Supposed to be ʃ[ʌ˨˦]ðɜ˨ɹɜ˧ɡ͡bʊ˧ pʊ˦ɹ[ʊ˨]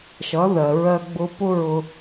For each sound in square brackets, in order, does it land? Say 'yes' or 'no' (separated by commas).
yes, no